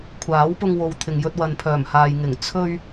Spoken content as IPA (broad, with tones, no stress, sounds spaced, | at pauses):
kʷʰ aː˨˥ w p ʊ˧ ŋ w o˨ w t̪ʰ ɪ˨ ŋ j ɵ˧ t̚ w ɐ˨ n pʰ œː˨˩ m h aː˨ j ŋ ɪ˨˩ ŋ t͡sʰ ɵ˧ ɥ